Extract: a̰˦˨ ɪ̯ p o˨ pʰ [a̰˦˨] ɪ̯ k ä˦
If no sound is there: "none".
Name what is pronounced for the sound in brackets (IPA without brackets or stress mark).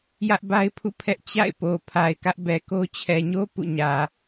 a˨